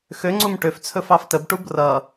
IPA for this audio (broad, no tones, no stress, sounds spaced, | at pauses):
x ø ŋ͡ǀ u m ʈ ø f t͡sʰ ɵ f ɑ f t ə b ʈ u b r ʌ